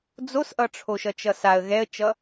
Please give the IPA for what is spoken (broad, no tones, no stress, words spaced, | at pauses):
d͡zosʔʌʈ͡ʂʰoʃʌ t͡ʃʌsaə̯ ɣɛə̯t͡ʃʌ